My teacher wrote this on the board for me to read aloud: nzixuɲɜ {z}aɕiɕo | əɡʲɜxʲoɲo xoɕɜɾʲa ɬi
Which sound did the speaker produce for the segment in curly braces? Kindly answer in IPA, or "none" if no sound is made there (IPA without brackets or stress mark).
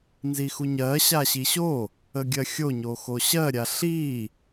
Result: ɕ